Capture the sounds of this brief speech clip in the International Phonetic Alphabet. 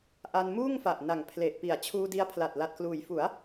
ʔ a˧ n m uː˥˩ ŋ f a˨˩ ʔ n a˨˩ ŋ pʰ l e˨˩ ʔ p i˨˩ a̯ t͡ɕʰ uː˧ d i˧ a̯ pʰ l a˨˩ t̚ l a˨˩ t̚ k l uː˩˦ j f u˩˦ a̯

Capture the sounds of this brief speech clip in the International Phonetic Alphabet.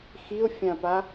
x i ʊ̯ fʲ ã p a

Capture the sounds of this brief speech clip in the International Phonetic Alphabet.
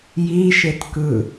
j i ʃ e t k ɯ

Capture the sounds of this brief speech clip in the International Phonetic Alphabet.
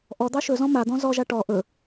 ʔ ɔ d̪ ɑ ʃ ɵ z ɔ̃ m a d̪ ɔ̃ z ɔ ʒ a ʈ ɔ ʔ ɵ

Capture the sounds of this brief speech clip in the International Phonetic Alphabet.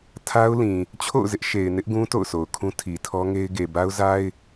tʰ a˦ ʊ̯ l ĩ˨ | t͡ɕʰ o̰˦˨ ʊ̯ z ɪ˦ ʔ ʃ e˨ ɪ̯ n ɪ˦ ʔ ɡ ũ˦ t o̰˦˨ ʊ̯ sʰ o˨ ʊ̯ kʰ ũ˦ tʰ i˨ tʰ ɔ˦ ŋ e˦ ɪ̯ ɡ e˨ b a˦ ʊ̯ z a˦ ɪ̯

